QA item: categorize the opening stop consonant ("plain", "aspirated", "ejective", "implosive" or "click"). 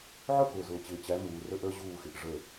plain